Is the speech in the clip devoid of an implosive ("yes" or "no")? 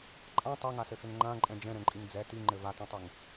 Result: yes